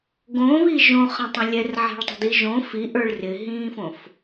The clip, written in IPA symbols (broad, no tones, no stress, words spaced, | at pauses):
ɡõβi ʒõχə̃tˤə̃ lʲɛrʕɛ̤ɭtˤə̤di ʒõ fiʔə˞ɭ rɪɦĩːfõf